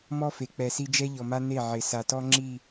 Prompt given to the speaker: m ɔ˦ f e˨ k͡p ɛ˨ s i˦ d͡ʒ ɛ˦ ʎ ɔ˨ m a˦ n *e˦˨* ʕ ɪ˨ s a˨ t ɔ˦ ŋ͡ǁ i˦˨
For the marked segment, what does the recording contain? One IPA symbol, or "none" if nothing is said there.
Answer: e˦˨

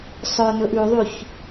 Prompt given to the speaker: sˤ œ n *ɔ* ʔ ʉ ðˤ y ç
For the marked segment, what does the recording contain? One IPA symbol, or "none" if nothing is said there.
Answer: ɵ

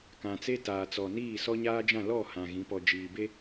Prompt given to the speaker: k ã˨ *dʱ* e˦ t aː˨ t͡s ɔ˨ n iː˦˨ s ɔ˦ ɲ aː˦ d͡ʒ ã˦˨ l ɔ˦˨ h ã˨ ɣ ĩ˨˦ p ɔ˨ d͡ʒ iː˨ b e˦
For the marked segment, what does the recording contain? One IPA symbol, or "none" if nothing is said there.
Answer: t͡s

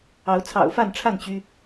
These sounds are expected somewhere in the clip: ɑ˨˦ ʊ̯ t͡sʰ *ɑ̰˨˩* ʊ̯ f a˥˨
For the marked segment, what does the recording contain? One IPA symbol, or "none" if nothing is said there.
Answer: ɑ̰˨˩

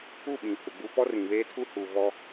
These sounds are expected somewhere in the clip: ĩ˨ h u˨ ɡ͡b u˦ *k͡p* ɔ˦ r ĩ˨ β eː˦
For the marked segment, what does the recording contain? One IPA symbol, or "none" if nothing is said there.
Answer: p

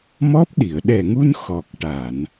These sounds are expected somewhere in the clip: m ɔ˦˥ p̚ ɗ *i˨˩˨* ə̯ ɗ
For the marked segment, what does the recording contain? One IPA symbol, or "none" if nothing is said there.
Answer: i˨˩˨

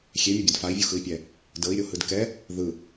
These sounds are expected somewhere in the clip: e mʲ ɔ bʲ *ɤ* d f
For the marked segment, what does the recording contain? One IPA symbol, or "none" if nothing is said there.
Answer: ɤ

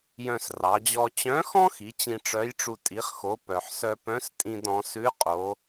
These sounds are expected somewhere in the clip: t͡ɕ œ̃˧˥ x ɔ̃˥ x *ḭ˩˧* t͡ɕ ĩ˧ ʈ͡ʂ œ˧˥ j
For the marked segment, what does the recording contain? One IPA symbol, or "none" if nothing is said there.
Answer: i˩˧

